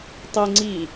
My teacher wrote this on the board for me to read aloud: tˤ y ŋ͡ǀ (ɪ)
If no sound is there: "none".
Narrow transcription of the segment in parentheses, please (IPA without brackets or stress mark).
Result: i